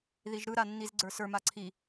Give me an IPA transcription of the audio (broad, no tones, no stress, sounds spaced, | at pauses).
ð i ʒ ɾ ɯ ɾ a nː i z ɡ͡ǀ ə˞ s ə˞ m a ǀʰ i